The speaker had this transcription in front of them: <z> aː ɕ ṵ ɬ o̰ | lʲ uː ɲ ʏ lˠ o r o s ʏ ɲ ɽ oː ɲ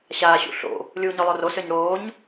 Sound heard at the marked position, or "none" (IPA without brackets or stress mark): ɕ